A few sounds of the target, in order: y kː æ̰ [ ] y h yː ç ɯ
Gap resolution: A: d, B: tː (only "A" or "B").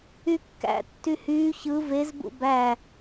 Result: B